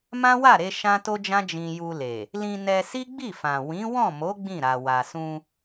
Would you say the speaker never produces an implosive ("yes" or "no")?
yes